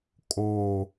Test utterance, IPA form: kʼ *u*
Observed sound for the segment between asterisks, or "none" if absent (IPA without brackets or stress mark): o